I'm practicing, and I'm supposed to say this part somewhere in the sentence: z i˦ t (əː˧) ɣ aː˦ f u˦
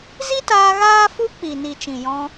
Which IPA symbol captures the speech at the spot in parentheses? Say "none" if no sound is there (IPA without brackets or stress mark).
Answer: aː˧